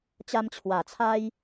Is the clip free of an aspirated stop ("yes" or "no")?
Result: no